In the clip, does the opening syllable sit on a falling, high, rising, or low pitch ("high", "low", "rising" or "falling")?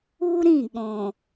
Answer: high